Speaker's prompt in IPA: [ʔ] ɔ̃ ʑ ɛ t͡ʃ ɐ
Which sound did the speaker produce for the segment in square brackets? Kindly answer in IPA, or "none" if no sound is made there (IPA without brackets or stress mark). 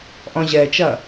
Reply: ʔ